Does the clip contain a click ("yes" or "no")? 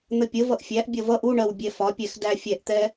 no